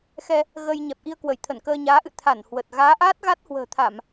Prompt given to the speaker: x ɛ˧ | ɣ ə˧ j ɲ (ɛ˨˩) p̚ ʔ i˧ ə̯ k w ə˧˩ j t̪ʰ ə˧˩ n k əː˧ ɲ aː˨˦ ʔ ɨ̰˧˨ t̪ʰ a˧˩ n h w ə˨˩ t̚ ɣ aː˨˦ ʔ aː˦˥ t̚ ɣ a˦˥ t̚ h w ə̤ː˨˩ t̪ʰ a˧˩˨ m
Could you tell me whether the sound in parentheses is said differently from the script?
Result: no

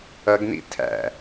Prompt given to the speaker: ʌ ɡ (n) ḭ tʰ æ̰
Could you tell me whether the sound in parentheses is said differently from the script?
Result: no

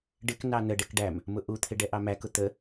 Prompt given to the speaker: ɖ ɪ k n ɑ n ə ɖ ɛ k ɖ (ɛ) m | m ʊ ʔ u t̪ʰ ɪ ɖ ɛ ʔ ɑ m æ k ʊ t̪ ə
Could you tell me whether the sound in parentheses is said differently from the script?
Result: yes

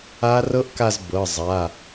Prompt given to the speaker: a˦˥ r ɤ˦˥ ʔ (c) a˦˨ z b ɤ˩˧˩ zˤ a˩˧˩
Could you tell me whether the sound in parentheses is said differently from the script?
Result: yes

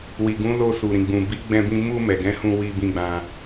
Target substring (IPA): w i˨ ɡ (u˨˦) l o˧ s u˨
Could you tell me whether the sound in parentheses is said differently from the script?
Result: yes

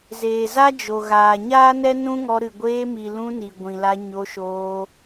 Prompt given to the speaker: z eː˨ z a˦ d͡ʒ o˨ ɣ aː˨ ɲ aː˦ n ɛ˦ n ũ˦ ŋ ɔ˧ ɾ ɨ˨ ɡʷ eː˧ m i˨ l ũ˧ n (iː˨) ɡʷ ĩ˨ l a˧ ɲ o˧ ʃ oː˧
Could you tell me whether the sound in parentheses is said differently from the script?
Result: yes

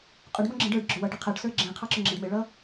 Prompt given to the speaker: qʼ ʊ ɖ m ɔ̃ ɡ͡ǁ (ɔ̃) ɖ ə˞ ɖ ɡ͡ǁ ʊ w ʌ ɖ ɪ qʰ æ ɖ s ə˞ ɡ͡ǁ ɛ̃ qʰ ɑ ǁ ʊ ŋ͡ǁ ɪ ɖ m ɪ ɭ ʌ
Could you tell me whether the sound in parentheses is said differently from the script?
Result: yes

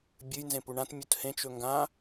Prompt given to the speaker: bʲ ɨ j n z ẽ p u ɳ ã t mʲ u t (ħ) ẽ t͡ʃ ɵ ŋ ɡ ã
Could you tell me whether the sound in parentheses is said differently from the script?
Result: yes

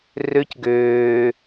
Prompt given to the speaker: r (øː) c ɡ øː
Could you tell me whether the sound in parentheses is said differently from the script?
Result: yes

